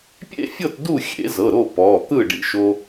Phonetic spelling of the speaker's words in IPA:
pʲ ḛ˥˨ fʲ ɤ˥˨ t d u˥˨ xʲ ḛ˨˩˦ z ɤ˩˧˩ ɾ o˥˨ p ɔ˩˧˩ t̪ ɯ˥˨ ɖ ḭ˧ ʃ o˧

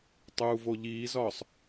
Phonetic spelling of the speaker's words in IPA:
tˤ uː v o ʎ iː z ɒː sˤ

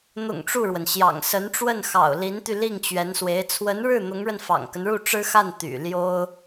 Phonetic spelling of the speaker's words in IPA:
n̪ ʊ̰˨˩ ŋ ʈ͡ʂ u˥˩ ɻ w ə˩ n ɕ j ɑ̰˨˩ ŋ s ə˧˥ n ʈ͡ʂ w ə˥˩ n x ɑ̰˨˩ ʊ̯ l i˧˥ n t̪ y˧ l i˥˩ ŋ t͡ɕ ɥ ɛ˧˥ n s w e˧˥ ɪ̯ t͡sʰ w ə˧˥ n ɻ ɻ̩˥˩ n̪ ʊ˧˥ ŋ ɻ ə˧ n f ɑ̰˨˩ ŋ k ə˦ n ɻ u˥˩ ʈ͡ʂ ɻ̩˥ x a˥˩ n t̪ y̰˨˩ l j o˥ ʊ̯

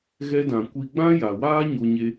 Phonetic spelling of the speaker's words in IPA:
ɣ ɛ˧ d ã˨ kʷ i˧ ɡ͡b ã˦ j a˨ w aː˦ ɲ o˧ ɲ e˧

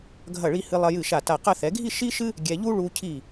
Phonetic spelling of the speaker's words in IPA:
ɡʱ ɐ˧˩ ɭ i˧ h ɨ˧ lˠ ɐ˧ j ɨ˧˩ ʃ a˧˩ t a˧˩ q ɐ˥˧ θ ɛ˩˧ ɡʱ i˥˧ ʃ i˥ ʃ ɨ˥ | ɡʲ ɛ˧ ʎ u˥ ɭ u˧ cʰ i˧˩

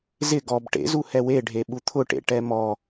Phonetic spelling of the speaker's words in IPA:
z ɪ ɡ ɔ b ʈ ḛ z u h ɛ w e ɖʱ e ɓ u t̪ʰ ʊ ʈ ḛ ʈ ɛ m ɔ

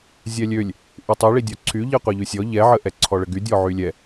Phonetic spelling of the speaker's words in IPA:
zʲ ɛ lʲ ø lʲ | ʔ y tˤ i ɭ i dʲ ɔ ǀʰ y ʎ i qʷ ɛ ʎ y sʲ ɔ ʎ ɛ ʕ ə ʔ ɛ ǀʰ ɔ ɭ ə ɡ y dʲ ɔ ʕ y lʲ ɛ

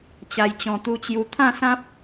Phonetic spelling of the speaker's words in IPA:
t͡ɕ a˨˩ j t͡ɕ ɔ̃˨˩ t̪ u˧ t͡ɕ j u˧ t̪ʰ ã˥˧ s ã˦ p̚

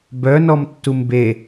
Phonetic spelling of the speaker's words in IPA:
b œ n ɔ m tː u m b e

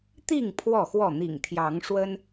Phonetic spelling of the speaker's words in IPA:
t̪ i˥˨ ŋ pʰ w ɔ˥˨ x w ɔ˥˨ n̪ ḭ˨˩ ŋ t̪ʰ j ɑ˨˦ ŋ ʂ w ə˦ n

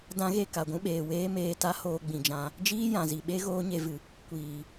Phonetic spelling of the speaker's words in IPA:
d ã˦ ɣ e˦˨ k a˨ ɡʷ ũ˦ ɓ eː˨ w eː˦ m eː˧ t a˦ h oː˧ ɡ͡b ĩ˨ d͡ʒ ã˧ | d͡ʒ iː˦ j ã˨ z i˨ ɓ e˦ ɣ oː˦ ɲ e˧ v ɨ˨ | kʷ iː˨

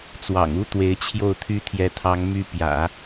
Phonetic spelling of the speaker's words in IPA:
t͡s w ɑ̰˨˩ ŋ u˥ t̪ w e˧˥ ɪ̯ t͡ɕʰ j o˥˩ ʊ̯ t̪ʰ y˥ t̪ʰ j ɛ˧˥ t̪ʰ ɑ˧˥ ŋ m y˥ p j ä̰˨˩˦

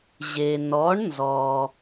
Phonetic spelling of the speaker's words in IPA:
ʑ e˩ n ɔ˩˧ ɳ n z ɔ˩

